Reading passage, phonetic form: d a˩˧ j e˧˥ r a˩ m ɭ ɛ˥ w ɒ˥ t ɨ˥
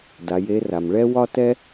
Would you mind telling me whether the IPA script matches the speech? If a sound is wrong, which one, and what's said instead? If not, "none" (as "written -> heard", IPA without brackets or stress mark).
ɨ˥ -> ɛ˥